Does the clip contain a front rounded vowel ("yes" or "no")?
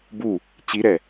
no